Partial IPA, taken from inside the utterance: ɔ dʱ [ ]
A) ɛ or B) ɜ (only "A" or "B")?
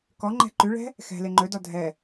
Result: A